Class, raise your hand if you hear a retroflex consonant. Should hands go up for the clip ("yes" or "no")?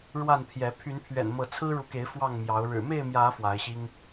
yes